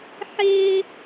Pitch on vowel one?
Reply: high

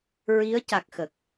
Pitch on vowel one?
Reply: rising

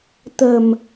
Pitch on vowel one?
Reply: low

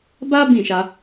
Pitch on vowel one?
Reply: high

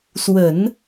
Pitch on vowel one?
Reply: low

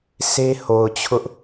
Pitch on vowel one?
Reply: high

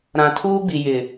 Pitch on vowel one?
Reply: low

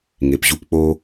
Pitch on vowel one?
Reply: low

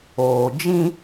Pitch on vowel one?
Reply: low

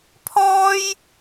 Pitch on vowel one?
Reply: high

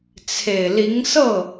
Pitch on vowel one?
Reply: low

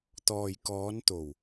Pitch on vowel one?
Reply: low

